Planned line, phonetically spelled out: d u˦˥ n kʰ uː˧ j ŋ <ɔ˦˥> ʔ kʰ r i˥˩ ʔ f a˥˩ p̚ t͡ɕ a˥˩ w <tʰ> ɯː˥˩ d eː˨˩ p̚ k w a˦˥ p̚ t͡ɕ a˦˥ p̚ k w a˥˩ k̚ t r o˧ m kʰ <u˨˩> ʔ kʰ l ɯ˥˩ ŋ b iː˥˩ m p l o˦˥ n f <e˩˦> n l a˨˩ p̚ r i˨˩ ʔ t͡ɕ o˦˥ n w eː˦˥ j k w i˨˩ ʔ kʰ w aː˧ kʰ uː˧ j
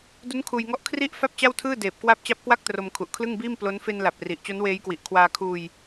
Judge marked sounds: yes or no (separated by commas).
yes, yes, yes, no